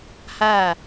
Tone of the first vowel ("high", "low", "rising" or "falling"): falling